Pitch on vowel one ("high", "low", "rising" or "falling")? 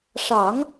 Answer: low